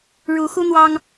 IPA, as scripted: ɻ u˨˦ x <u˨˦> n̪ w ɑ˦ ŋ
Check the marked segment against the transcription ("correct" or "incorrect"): incorrect